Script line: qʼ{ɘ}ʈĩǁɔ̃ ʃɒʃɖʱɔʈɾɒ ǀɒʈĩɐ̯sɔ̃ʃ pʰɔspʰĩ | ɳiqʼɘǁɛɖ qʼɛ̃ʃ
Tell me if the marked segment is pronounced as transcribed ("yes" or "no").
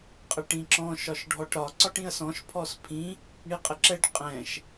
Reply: yes